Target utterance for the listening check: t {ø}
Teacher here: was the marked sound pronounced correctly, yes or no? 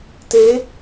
no